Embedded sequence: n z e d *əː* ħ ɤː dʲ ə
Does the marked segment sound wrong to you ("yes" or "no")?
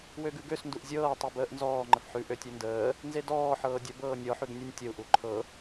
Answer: yes